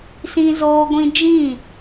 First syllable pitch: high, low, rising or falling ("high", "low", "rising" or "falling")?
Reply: high